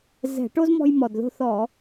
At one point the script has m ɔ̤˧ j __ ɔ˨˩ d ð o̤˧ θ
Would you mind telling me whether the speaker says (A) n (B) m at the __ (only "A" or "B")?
B